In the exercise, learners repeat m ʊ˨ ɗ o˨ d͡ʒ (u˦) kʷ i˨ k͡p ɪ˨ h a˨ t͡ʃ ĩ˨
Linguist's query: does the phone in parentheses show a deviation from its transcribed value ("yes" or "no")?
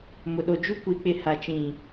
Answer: no